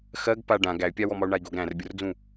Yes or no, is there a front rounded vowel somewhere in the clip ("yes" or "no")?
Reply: yes